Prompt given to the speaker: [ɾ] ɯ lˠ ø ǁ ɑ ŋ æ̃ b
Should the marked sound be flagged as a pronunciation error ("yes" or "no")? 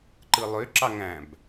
yes